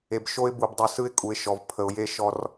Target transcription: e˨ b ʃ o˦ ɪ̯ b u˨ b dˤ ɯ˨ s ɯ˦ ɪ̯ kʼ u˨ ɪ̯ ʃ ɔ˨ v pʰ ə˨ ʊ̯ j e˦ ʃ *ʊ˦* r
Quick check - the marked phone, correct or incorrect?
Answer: incorrect